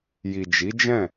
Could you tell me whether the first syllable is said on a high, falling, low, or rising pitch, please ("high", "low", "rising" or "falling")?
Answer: low